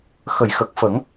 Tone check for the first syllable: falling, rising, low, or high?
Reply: low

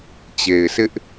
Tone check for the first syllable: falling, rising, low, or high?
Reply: low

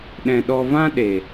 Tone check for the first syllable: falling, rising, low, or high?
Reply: low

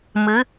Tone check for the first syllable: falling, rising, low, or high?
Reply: rising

